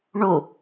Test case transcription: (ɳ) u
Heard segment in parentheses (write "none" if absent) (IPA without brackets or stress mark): ɳ